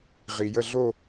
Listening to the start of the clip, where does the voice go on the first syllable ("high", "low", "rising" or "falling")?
low